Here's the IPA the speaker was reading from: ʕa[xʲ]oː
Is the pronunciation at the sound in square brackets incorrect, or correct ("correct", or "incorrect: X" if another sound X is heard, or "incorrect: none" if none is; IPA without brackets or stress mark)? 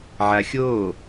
correct